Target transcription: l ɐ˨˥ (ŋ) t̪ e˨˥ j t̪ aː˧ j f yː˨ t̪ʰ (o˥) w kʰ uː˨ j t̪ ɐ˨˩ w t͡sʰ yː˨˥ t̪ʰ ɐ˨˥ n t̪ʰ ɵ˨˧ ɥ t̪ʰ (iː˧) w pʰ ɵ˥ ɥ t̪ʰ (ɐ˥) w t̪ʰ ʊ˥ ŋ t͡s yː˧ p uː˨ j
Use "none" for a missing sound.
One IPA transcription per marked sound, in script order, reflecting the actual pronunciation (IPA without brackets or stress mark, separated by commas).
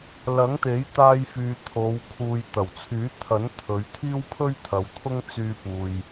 ŋ, o˨˧, iː˥, ɐ˨˧